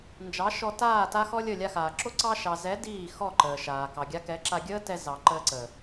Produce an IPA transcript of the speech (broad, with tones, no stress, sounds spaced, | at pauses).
n d͡ʒ ɑ˨˦ ʃ ɔ˧ t aː˦˨ t a˦ x ɔ˦ lʲ ə˦˨ lʲ a˧ x aː˨ ǁ o˦ ǀ ɑ˧ ʃ ɑ˨ z ɛ˨˦ d iː˦˨ x ɔ˦˨ ǃ əː˨ ʃ aː˨ k ɑ˨ ɡʲ a˧ k ɛ˨˦ ǁ a˧ ɡʲ əː˦ t ɛ˧ z ɑ˨ ǃ əː˧ ǀ əː˨